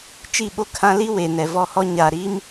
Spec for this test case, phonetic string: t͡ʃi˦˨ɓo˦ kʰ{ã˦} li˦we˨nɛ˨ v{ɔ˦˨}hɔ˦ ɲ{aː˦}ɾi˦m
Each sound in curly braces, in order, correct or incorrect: correct, correct, incorrect

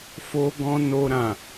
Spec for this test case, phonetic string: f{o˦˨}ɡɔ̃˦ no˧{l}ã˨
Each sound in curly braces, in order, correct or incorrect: incorrect, incorrect

